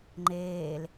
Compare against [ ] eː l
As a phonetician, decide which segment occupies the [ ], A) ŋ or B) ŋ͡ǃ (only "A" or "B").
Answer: B